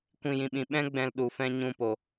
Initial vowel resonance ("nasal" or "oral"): nasal